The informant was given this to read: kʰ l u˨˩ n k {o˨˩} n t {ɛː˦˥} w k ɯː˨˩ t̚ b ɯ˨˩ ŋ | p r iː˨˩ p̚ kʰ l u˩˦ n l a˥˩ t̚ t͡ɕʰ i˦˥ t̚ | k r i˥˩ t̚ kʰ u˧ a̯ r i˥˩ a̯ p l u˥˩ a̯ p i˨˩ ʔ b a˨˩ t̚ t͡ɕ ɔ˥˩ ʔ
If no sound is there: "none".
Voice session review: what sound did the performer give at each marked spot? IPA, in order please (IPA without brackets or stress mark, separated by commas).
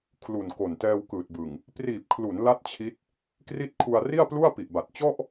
o˨˩, ɛː˧